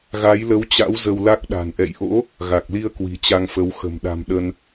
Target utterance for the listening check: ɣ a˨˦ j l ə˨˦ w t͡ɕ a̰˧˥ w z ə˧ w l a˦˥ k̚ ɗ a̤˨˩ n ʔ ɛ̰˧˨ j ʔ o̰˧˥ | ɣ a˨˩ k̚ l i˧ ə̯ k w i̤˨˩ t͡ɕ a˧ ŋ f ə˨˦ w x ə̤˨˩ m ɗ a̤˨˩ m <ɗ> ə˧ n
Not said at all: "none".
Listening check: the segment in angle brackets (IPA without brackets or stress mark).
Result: ɗ